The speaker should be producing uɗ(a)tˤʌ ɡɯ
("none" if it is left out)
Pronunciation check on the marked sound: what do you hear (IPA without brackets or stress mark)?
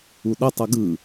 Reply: ʌ